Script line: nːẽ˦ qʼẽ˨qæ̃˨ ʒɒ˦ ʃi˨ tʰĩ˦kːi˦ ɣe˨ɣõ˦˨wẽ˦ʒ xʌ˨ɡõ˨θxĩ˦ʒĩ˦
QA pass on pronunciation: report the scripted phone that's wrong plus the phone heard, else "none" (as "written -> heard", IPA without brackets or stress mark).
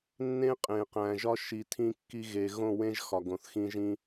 ʌ˨ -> ɒ˨